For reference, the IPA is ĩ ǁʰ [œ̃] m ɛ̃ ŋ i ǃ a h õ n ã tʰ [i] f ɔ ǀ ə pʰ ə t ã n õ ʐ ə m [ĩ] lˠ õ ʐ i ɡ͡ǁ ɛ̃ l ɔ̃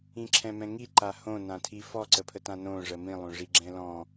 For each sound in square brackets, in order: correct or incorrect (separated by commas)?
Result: incorrect, correct, correct